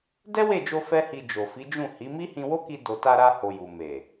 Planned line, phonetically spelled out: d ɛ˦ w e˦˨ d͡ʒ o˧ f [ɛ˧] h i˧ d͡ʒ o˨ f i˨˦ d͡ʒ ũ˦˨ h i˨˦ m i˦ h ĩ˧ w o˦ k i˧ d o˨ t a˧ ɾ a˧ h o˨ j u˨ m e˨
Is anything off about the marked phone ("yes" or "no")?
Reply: yes